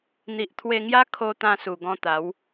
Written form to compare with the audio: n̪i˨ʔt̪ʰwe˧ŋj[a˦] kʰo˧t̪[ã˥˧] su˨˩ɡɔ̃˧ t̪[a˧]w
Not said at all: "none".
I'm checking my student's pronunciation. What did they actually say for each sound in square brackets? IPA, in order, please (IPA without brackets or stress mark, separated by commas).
a˦, ã˧, a˨˦